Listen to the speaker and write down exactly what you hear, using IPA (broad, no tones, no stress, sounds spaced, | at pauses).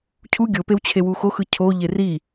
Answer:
cʰ u ɡʲ o p e w t͡ɕʰ e w u x o x ɯ cʰ o ʎ e r i